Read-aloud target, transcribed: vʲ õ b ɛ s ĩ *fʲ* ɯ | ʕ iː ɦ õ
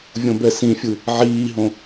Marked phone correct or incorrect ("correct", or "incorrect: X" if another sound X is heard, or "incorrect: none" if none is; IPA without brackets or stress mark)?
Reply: correct